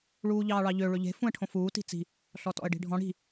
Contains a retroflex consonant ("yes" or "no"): yes